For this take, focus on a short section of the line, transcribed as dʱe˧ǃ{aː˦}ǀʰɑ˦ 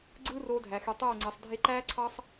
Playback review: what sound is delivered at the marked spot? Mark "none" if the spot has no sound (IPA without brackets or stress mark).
æː˦